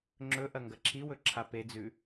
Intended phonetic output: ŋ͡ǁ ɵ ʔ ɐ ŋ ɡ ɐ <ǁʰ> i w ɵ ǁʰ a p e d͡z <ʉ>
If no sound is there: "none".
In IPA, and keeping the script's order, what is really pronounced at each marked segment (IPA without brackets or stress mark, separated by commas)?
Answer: ǁʰ, ʉ